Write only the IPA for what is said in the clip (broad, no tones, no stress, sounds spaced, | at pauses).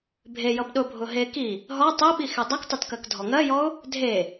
bʱ e j ʌ b ɗ ʊ bʱ ʊ ɦ e k i | ɦ ɔ tˤ e ɓ i x e dˤ ʌ k tˤ ʊ t k ɜ k dʱ ɔ ŋ ɜ j ɔ ʊ̯ | dʱ e